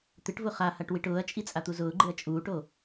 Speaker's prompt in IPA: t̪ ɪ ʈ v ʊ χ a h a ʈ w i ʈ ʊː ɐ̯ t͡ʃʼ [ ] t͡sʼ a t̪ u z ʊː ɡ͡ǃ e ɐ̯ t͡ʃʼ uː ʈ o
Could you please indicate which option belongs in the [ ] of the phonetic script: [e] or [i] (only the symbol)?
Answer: i